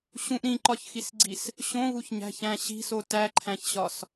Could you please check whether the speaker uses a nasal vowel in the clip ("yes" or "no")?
yes